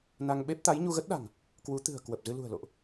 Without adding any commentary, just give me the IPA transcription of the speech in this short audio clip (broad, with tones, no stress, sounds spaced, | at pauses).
n a˧ ŋ ɓ e˦˥ p̚ t̪ a˨˦ j ɲ u˧ ɣ ə˦˥ t̚ ɗ a̤˨˩ ŋ | k w u˨˦ t̪ ɨ̤˨˩ ə̯ k w ə˨˩ p̚ z ɨ˧ l ṳ˨˩ ə̯ l o̰˧˨ ʔ